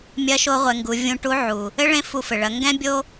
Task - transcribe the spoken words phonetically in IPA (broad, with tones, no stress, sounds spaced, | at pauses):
mʲ ɐ˧˥ ʃ o˧˥ ʁʷ ɛ˩˧ ŋ ɡ u˩˧ vʲ ũ˧ ʈ u˧˥ ʕ u˩ | ɘ˥ ɭ ẽ˧˥ f u˧ f ɘ˩ ɭ ɐ˩˧ ŋ ɡ ɛ̃˥ bʲ o˥